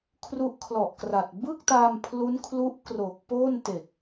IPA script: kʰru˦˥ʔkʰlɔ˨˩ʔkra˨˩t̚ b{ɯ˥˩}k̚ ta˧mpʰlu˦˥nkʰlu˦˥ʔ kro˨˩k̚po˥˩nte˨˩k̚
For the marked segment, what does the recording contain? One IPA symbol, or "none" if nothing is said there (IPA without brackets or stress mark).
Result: ɯ˥˩